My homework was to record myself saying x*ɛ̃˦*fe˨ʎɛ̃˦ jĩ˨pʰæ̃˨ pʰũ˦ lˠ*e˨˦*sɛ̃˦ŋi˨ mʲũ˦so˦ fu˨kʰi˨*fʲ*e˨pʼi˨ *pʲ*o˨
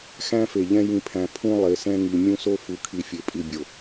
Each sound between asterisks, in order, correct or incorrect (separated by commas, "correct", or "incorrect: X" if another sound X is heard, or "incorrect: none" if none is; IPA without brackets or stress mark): incorrect: æ̃˦, correct, correct, incorrect: bʲ